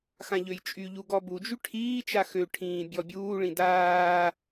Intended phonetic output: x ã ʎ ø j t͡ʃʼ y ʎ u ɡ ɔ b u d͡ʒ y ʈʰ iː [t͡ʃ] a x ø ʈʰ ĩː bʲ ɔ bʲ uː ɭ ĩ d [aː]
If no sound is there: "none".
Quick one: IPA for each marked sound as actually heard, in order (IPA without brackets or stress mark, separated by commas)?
t͡ʃ, aː